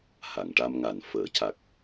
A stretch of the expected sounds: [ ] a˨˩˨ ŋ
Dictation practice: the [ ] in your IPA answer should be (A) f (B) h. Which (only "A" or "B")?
B